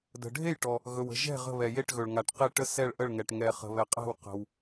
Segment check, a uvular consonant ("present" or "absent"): present